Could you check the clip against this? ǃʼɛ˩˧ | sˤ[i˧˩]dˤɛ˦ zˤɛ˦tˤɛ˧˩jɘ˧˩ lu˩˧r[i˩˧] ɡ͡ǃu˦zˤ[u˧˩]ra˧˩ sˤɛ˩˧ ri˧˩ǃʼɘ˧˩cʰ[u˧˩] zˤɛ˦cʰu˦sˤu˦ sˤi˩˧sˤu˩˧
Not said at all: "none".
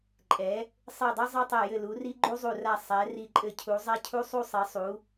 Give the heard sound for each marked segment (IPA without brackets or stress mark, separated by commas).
i˧˩, i˦, u˧˩, u˩˧